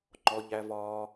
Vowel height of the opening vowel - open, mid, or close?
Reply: mid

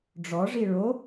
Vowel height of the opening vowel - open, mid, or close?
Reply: mid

